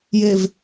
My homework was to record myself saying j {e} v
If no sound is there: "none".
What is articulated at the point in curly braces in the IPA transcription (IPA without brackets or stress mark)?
e